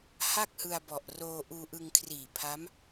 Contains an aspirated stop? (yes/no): yes